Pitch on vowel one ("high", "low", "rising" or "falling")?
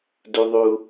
high